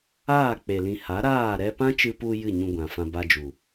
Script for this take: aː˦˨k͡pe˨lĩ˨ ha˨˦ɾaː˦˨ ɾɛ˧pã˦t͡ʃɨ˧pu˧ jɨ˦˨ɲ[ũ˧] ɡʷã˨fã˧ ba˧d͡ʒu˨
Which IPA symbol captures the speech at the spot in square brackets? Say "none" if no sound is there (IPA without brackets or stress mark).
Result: ũ˧